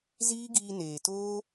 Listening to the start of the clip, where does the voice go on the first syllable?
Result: high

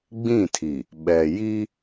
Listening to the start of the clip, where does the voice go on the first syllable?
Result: falling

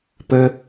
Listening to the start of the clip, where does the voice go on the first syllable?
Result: high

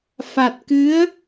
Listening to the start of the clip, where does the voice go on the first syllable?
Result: low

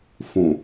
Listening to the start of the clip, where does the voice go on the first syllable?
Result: low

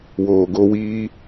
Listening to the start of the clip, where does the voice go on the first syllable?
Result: low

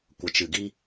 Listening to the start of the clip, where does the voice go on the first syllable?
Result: low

